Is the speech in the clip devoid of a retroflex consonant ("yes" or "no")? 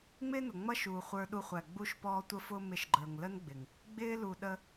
yes